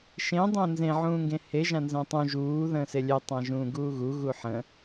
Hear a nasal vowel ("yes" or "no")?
yes